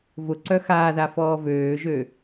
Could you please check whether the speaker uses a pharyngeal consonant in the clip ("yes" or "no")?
no